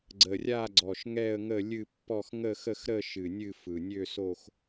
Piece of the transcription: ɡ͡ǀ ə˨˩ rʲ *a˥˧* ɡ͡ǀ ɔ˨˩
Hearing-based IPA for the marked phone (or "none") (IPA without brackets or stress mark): a˥˧